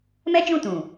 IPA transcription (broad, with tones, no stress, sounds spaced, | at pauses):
m ɛ˦ d͡ʒ ũ˦˨ t ũ˨